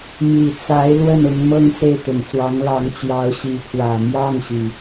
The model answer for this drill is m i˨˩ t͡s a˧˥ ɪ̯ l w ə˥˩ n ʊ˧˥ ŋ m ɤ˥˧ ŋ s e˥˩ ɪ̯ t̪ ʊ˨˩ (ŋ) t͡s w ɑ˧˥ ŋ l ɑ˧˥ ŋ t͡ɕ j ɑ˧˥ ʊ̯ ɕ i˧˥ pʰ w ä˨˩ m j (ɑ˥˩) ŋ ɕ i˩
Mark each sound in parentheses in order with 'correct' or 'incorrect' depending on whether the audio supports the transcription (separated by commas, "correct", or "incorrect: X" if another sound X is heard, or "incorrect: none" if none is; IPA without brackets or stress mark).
correct, correct